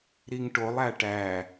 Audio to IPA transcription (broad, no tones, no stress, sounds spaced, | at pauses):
ɾ i ŋ ʈ o lˠ æ ʈ æ